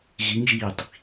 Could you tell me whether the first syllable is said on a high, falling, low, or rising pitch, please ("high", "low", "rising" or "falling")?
rising